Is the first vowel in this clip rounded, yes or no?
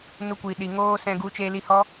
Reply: yes